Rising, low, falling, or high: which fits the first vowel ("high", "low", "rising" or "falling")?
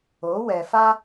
rising